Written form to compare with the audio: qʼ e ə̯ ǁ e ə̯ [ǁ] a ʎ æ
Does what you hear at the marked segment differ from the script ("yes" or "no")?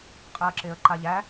yes